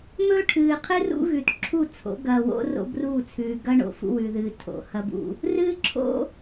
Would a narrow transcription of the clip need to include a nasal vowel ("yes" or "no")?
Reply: no